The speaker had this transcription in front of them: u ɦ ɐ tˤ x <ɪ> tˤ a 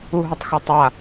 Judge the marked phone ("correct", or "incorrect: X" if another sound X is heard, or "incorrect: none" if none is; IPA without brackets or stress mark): correct